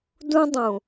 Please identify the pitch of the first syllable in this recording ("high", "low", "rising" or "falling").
high